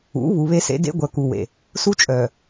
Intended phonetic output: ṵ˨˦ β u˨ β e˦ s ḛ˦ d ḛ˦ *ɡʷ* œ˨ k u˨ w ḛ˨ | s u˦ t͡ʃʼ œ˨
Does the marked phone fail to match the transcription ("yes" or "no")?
no